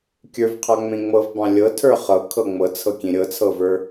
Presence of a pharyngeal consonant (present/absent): absent